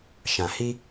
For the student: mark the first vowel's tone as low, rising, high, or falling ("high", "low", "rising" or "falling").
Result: low